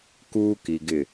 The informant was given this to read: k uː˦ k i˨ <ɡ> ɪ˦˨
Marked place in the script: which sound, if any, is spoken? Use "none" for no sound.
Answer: ɡ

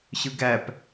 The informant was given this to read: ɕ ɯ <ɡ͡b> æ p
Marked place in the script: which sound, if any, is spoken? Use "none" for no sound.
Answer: ɡ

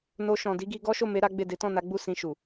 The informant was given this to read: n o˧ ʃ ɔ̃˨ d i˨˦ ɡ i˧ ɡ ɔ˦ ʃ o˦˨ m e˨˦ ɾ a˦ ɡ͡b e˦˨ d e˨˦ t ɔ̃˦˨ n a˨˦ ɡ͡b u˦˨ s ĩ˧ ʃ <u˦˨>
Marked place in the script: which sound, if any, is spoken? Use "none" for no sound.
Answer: u˨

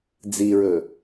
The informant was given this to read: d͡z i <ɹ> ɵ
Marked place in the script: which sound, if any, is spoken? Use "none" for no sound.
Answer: ɹ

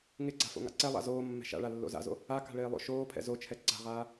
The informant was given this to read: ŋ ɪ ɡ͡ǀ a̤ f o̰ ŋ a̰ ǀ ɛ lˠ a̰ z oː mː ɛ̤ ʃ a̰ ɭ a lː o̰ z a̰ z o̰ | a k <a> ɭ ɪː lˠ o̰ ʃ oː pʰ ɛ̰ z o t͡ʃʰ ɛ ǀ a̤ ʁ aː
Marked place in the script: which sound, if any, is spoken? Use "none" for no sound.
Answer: a̤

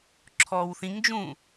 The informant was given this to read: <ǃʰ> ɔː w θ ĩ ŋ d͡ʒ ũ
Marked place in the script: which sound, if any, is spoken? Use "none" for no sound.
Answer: ǁʰ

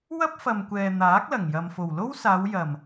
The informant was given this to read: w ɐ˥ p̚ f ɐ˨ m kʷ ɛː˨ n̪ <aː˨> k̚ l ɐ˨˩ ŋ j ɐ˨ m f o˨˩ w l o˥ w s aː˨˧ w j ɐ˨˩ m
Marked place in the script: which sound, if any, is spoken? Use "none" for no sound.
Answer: aː˨˥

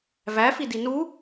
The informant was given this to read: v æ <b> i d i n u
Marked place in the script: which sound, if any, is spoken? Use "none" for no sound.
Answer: f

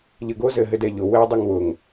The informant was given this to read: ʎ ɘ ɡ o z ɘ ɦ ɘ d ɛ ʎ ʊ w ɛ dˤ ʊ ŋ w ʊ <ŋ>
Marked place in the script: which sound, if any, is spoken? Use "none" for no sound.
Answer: ŋ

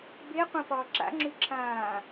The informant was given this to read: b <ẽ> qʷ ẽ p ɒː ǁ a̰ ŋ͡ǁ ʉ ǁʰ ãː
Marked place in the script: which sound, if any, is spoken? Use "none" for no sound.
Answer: e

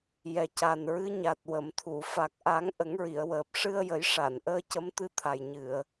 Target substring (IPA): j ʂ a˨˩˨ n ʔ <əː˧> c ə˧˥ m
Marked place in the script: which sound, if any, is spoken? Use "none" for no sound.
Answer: əː˧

